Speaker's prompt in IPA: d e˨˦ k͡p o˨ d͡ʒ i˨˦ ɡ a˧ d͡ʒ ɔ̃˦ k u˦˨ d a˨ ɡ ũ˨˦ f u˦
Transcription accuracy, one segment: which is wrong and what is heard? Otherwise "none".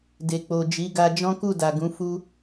e˨˦ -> e˨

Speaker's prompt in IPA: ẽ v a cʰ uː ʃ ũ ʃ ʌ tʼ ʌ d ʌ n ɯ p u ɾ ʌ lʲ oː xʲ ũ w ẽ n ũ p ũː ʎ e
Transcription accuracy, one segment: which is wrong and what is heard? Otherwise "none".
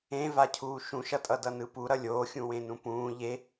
none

